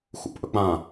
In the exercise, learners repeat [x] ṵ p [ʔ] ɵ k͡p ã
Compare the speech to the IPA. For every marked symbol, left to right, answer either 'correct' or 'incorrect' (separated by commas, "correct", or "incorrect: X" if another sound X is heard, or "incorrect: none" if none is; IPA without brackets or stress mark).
correct, correct